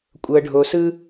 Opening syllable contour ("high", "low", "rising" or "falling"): low